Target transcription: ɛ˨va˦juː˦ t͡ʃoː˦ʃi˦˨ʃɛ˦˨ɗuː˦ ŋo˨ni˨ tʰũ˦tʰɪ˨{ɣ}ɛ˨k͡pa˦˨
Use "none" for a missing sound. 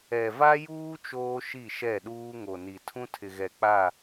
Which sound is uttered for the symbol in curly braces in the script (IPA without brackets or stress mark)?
ɣ